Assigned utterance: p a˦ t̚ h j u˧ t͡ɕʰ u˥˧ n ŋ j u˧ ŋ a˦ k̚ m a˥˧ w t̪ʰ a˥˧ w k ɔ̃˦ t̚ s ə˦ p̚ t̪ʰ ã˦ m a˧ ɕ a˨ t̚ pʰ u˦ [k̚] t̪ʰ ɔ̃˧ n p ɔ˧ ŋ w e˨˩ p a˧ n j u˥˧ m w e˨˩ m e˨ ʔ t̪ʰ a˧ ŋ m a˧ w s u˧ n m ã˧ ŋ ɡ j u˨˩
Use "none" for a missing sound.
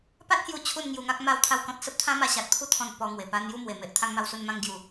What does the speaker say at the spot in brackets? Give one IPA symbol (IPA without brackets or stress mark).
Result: none